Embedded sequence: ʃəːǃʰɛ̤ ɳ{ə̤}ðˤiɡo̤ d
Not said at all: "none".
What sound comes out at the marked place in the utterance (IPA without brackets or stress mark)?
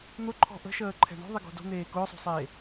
ɔ̤